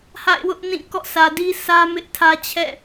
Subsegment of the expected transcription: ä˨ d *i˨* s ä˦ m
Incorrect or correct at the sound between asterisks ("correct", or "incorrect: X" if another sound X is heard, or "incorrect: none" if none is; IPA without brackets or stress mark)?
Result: incorrect: i˦